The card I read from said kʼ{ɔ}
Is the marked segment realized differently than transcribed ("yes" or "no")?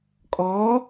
no